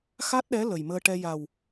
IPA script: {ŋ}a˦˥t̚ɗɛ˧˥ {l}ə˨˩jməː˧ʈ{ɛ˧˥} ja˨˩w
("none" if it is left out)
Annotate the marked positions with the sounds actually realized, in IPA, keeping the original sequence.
x, l, ɛ˧

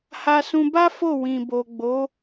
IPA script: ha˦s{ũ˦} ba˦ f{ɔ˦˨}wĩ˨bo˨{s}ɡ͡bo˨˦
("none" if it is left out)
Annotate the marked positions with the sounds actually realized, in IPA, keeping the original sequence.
ũ˦, o˦˨, none

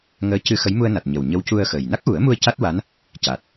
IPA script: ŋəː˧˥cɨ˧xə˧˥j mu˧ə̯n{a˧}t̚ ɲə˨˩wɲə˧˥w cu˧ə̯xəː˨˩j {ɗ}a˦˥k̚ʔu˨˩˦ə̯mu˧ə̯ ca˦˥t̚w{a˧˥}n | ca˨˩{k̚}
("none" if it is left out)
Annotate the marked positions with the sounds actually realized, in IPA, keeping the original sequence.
a˨˩, n, a˧˥, t̚

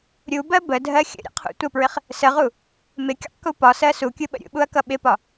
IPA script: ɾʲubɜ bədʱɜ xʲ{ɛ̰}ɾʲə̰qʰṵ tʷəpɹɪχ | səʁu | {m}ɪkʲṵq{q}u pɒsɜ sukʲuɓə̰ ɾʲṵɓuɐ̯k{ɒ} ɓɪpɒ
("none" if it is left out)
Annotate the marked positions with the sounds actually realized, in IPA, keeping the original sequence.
ə̰, m, k, ʌ

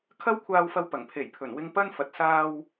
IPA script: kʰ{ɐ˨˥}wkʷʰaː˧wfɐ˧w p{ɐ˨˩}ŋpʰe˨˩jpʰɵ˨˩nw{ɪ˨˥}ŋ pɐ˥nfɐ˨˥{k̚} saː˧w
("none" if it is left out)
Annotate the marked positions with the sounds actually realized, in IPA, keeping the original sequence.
ɐ˥, ɐ˨˩, ɪ˧, t̚

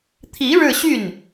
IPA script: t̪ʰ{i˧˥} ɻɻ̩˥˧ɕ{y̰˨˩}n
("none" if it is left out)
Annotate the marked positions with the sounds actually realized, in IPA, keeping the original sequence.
i˧˥, y˥˩

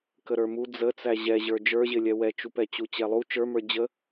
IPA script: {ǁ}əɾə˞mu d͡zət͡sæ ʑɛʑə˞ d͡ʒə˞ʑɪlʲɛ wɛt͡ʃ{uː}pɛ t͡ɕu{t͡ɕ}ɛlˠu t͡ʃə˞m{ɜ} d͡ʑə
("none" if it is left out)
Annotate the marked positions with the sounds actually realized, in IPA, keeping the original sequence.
k, u, t͡ɕ, ə˞

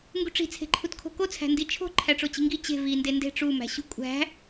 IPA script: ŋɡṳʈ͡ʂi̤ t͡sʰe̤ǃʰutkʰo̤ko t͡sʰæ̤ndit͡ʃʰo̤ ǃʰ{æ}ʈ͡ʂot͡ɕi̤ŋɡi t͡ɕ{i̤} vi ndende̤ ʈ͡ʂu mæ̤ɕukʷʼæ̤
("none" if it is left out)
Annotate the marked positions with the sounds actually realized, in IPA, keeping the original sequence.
æ, e̤

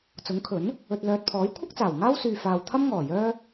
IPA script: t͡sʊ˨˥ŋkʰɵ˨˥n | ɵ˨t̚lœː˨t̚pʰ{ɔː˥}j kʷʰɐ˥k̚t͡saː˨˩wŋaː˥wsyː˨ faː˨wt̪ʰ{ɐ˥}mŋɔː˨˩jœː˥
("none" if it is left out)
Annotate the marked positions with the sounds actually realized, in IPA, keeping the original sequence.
ɔː˨˥, ɐ˥

